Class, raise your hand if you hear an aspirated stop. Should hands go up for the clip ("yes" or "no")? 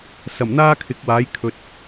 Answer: yes